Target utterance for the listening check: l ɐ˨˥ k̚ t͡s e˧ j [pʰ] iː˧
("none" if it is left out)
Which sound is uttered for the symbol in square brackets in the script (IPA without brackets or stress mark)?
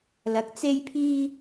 pʰ